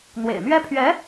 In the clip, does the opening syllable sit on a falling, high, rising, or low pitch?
low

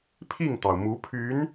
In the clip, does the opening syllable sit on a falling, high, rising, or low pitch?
falling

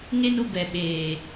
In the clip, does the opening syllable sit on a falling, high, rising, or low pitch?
high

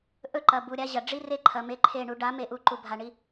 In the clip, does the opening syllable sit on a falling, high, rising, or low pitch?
falling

